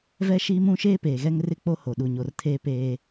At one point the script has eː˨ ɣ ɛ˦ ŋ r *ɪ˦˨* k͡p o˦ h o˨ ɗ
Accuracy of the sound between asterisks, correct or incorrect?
correct